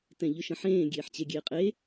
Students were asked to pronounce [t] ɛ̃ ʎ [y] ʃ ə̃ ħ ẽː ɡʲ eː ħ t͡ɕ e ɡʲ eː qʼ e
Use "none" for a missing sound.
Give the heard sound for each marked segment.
t, ʏ

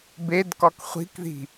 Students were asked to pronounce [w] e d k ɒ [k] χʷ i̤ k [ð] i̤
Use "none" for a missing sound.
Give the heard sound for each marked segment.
b, k, ð

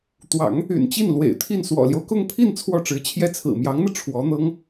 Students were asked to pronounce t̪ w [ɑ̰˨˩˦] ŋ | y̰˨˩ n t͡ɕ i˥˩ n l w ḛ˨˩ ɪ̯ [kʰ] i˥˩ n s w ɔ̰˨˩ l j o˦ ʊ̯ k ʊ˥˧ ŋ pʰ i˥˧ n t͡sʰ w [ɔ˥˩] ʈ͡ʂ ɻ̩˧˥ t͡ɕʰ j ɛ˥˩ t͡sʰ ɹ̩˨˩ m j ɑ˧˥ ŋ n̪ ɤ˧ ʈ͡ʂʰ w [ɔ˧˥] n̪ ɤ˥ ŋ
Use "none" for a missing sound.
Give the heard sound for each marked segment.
ɑ̰˨˩˦, t̪ʰ, ɔ˥˩, ɔ˧˥

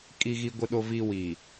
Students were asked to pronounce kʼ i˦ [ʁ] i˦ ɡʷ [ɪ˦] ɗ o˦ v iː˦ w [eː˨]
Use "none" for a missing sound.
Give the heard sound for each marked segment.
ɣ, ɪ˦, iː˨

